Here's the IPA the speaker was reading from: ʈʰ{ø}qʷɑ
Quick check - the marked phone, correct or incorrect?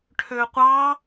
correct